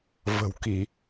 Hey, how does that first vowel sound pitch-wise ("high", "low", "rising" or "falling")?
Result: low